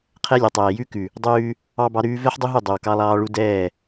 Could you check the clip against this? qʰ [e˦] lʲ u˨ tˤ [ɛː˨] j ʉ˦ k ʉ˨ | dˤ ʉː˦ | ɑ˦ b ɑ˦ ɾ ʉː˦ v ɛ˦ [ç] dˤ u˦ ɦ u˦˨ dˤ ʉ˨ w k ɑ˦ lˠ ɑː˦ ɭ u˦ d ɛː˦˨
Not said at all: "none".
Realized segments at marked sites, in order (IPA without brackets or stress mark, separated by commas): ɛ˦, ɛː˨, ħ